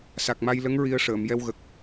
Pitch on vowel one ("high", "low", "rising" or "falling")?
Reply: low